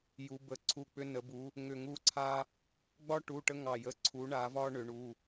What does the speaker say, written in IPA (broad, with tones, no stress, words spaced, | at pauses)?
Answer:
ju˧˥bə˦˨ ǀʰu˦˨k͡pʏ˥ nə˧˥bu˧˥ | ŋʏ˦˨ŋu˥ǀʰa˥ | ɡ͡bɒ˥ ʈu˧˥˧ʈə˥ŋɑ˦˨ jə˧˥˧ǀʰu˧˥ ɳa˧˥ vɒ˥ ɳʏ˧˥ɳu˧˥˧